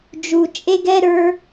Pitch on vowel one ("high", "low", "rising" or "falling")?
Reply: low